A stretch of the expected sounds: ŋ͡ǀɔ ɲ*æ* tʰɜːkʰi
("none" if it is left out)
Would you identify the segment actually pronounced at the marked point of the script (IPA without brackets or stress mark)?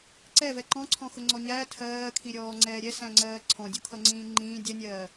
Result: æ